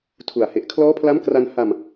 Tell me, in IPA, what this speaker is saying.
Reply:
tʰu˨˩a̯ he˨˩ʔkʰlɔː˦˥pʰla˦˥mkra˧n ha˧m

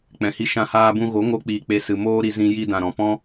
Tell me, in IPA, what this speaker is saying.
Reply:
k͡pɛ̃˨hi˧ ʃã˧haː˧bũ˧ ɣo˨˦ŋo˧k͡piː˨ k͡pe˧sɨ˨ moː˦ ɾi˧ zĩ˦ ji˧dã˨ɾɔ̃˨ pɔ̃˦

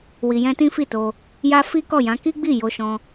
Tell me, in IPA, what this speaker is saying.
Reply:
wi˨jɛ̃˧ tĩ˦fi˦˨to˧ | ja˦fi˦kɔ˦˨jã˨˦ ki˦ɡ͡bi˦˨ jo˧ʃɔ̃˧

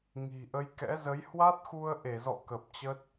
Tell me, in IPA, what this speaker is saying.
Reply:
ŋi̤˨˩ʔə˨˦jkɛ̰˧˥zə˨˦j hwa˦˥t̚xu˧ə̯ʔe˧˩zɔ̰˧˨ kə˨˩p̚t͡ɕə˦˥t̚

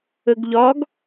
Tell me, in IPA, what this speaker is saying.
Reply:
əɡʎɒɡ

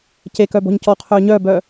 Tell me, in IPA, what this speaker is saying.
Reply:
cekœbɔ̤ɲ cɔqʰœː ɲœːbœː

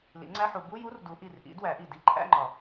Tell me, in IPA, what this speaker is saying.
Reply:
lḭ˩˥ŋ͡ǀæ˧˥˧ħu˨˩˦ bu˧˥˧ju˧˥˧r du˨˩˦ʔi˨˩rʔḭ˩˥ dwæ˨˩˦ʔi˨˩ di˧˥˧ǃʰæ̰˧˥˧ŋ͡ǃɒ˨˩˦

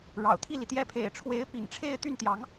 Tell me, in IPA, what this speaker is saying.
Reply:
ɻɑ̰˨˩ʊ̯t̪ʰi˥˩li˩t̪jɛ˥˩ pʰḛ˨˩ɪ̯ʈ͡ʂʰwe˧˥ɪ̯ pḭ˨˩ŋʈ͡ʂʰe˥˧ɪ̯ t̪y˥˩nt̪jɑ˧˥ŋ

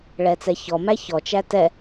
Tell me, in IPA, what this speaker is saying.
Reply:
ɭɛt͡sɛçɔmæ çɔt͡ʃæ tɛ

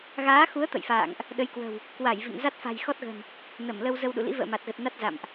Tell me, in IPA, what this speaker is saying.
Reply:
ɣaː˨˦xu˨˦ə̯ t̪ə̰˧˨jfa̰ː˧˨ŋʔ | ɗə˨˦jkwə̤˨˩w | kwa˧˩j vḭ˧˨ŋza˦˥t̚ fa̤˨˩jxɔ˦˥t̚ɣə̤˨˩n | nə˧˩mlə˧w zə˧wɗṵ˧˨lḭ˧˥ və̰ː˧˨ma˨˩t̚ɣə˨˩t̚ na˦˥t̚za̰˧˨mʔ

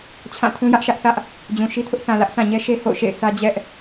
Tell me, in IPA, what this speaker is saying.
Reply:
t͡ɕʰã˦˨tʰũ˦jä˦ʔʃä˦ʔ θä˦ʔ | d͡ʑũ˨ʃi˦tʰʊ˦ʔ sʰã˨lä˦ʔsʰã˨ɲɛ˦ ʃe˦ho̰˦˨ʊ̯ʃḛ˦˨ɪ̯sʰä˦ d͡ʑɛ˦ʔ

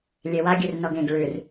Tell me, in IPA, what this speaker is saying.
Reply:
lʲewa ɡʲʉrnɔɡẽɡ ɭʉr

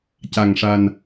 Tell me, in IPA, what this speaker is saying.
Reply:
ca˨˩ŋʂa˨˩n

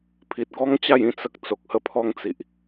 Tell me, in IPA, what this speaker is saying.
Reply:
pʰi˨t̚ɡɔ˦ŋt͡ɕa˥˧j ĩ˦t͡sə˦k̚ t͡so˨k̚hə˦ pʰɔ˦ŋt͡si˨ʔ

